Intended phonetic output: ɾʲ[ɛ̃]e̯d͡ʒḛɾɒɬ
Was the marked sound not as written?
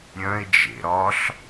yes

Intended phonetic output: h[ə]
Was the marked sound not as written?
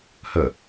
no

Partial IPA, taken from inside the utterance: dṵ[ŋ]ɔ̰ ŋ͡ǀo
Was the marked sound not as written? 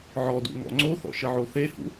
no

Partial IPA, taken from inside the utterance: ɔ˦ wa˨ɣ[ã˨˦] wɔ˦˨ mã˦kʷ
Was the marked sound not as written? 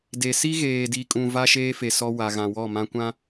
yes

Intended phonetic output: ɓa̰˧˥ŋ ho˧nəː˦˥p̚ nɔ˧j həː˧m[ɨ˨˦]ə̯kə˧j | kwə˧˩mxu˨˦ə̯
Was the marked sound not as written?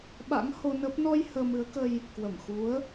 no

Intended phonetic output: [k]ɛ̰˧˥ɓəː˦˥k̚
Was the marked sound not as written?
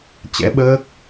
yes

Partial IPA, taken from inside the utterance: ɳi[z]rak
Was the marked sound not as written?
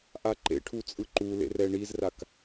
no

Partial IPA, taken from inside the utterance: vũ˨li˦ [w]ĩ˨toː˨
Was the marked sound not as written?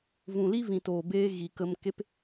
yes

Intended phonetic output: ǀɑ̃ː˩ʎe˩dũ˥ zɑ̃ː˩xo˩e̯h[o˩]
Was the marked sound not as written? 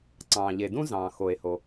no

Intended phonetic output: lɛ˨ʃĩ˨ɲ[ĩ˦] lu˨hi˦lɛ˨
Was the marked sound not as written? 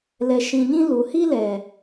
no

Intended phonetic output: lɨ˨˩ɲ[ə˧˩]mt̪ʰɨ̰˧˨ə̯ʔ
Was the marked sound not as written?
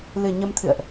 yes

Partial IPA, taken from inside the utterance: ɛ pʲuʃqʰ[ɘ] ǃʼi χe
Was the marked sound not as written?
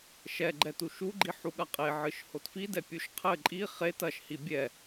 no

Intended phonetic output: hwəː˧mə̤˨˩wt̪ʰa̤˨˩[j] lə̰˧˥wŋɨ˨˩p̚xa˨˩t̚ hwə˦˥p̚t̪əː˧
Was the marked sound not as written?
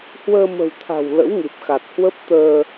yes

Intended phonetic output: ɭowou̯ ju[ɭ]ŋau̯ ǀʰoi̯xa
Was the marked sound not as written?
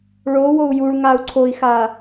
no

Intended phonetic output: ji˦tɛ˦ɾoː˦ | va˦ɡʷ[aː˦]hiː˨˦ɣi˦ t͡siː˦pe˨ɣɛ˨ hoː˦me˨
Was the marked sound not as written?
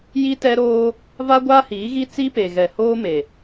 no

